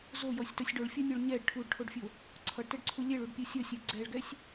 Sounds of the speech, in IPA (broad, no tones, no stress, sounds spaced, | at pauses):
z o j ɔ sʲ t ʌ sʲ ɖ o ɭ fʲ ɔ nʲ o ɭ ɲ ɛ ɖ ʈʰ u ɖ ʈʰ o ɖ fʲ o | ǀʰ ʌ ɖ t ɛ ɖ ǀʰ u lʲ ɛ ɭ u ɖ pʲ u sʲ ʌ sʲ ɛ ɡ͡ǀ ɛ ɭ ɡ ɛ sʲ